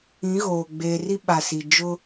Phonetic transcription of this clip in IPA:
ĩ˨˦ ɣ oː˨ ɡ͡b eː˨ r i˦ ɓ a˨ s i˨ d͡ʒ ʊ˦

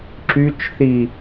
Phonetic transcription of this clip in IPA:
ǁ y t͡ʃ θ i

